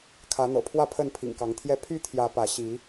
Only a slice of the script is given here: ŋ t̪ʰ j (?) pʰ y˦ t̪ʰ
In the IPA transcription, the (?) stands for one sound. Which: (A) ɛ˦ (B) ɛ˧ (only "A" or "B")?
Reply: A